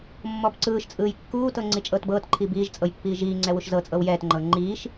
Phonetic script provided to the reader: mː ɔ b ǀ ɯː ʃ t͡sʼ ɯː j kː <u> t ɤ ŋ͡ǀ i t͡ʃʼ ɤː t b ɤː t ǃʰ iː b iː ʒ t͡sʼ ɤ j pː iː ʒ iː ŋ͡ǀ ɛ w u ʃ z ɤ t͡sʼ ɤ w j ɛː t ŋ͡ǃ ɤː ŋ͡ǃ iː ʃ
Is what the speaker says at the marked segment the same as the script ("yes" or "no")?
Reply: no